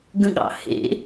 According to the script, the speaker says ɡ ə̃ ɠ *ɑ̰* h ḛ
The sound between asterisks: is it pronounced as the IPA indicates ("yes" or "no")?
yes